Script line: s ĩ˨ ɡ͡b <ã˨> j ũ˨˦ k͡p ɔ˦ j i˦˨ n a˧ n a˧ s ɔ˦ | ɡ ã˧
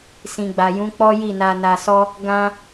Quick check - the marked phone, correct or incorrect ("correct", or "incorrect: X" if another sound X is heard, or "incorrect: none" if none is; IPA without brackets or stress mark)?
incorrect: a˨